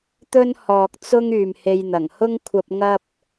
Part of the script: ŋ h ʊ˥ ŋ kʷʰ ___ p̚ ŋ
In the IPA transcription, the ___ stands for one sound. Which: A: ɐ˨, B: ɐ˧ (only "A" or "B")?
B